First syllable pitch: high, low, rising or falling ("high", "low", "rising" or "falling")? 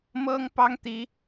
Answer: high